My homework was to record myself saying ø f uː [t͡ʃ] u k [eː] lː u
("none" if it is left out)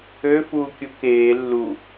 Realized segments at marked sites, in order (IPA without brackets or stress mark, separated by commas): kʲ, eː